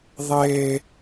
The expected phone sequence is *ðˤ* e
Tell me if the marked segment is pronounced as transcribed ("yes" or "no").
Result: yes